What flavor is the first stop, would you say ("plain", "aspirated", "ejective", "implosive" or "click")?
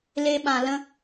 implosive